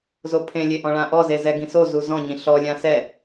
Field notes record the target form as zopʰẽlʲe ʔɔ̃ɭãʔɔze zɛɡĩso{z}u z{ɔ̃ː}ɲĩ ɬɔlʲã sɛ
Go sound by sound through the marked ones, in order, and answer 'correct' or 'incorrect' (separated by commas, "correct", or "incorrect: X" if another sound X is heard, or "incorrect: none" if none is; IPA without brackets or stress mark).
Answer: correct, incorrect: ɔ̃